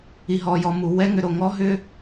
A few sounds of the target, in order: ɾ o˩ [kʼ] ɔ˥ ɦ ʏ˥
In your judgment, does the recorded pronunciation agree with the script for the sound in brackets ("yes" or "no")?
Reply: no